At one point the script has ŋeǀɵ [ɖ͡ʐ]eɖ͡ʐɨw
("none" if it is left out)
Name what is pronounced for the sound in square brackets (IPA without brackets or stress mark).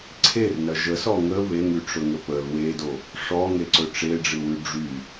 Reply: ʈ͡ʂ